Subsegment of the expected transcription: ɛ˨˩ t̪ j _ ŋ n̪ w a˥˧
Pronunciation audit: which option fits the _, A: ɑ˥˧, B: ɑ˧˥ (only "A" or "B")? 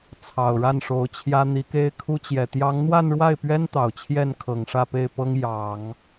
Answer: B